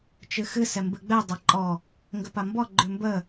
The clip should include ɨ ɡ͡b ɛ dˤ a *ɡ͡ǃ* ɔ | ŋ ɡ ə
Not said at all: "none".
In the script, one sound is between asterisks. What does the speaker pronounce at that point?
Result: ǃʼ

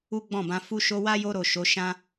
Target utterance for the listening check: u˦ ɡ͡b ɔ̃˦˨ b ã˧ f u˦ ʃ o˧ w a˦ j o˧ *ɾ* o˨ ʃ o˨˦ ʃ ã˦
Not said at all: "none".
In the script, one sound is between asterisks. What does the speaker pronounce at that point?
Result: ɾ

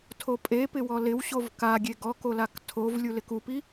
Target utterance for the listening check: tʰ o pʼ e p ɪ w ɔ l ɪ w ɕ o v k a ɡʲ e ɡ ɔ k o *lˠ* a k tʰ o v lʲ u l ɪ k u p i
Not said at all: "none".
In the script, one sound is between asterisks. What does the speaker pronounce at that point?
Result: l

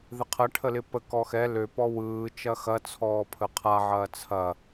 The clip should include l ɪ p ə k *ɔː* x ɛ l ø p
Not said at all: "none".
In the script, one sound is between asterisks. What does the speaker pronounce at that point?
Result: ɔ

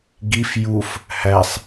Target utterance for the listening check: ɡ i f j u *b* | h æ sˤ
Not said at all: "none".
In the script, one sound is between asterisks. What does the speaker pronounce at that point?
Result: f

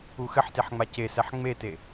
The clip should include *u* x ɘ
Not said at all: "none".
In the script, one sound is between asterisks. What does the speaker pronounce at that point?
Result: u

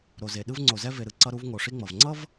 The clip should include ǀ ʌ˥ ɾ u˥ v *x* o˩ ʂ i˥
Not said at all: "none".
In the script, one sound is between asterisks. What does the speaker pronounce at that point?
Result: ŋ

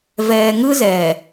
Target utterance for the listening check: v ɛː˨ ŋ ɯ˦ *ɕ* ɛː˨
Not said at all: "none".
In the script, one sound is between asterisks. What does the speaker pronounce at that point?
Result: z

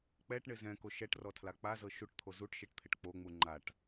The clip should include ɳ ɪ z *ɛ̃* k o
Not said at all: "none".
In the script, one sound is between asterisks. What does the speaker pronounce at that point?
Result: ɛ̃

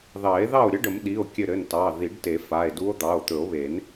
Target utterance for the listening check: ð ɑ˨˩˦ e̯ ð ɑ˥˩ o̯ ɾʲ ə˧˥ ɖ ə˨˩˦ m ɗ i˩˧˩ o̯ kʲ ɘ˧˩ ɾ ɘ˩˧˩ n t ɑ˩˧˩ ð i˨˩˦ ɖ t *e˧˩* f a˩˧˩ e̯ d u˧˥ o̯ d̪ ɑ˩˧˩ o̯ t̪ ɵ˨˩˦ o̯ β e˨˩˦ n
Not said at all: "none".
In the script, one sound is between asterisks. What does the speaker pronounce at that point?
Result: e˨˩˦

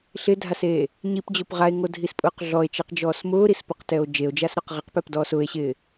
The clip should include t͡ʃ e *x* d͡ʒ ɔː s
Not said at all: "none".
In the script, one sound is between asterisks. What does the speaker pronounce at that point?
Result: q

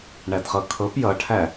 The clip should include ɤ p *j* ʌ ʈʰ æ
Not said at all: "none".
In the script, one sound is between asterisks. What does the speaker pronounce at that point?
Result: j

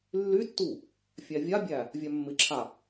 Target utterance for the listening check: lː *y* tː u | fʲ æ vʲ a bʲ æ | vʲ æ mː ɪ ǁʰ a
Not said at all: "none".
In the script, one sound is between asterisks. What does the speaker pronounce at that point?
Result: y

